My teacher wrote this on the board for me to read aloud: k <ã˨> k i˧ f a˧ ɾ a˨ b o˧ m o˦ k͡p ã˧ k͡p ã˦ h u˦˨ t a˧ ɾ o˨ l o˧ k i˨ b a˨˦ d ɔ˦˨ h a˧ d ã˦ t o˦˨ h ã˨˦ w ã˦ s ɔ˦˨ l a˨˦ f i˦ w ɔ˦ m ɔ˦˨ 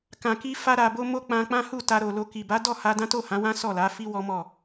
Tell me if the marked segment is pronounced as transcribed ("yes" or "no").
yes